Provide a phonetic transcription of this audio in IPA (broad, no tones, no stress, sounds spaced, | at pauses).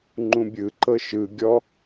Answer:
ŋ͡ǃ ũ bʲ ɯ ǃ ɤ ʃ ɯ ɡʲ ɔ